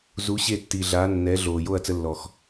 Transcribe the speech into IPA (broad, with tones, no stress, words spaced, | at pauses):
zu˨˦ɕe˦˨tːiː˨ ɮaː˨˦nːɛ˨˦ɮoː˨ jo˦˨ɐ̯t͡sə˧lːɔ˨x